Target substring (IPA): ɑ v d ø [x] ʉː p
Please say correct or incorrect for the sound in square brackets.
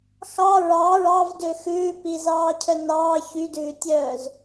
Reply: correct